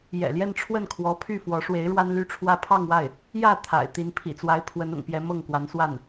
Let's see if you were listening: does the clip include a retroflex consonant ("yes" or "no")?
yes